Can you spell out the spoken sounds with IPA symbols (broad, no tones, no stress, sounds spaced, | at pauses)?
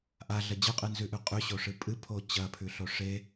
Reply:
ʔ a ɮ ɐ d͡ʑ ɨ qʼ ɨ n z ʉ ʔ ʉ qʼ ʉ ɕ o ʂ ɨ pʼ ɨ pʰ o t͡ɕ ɐ pʰ ʉ ɬ o ʂ e